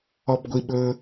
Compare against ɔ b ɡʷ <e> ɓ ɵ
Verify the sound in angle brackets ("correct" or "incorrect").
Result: incorrect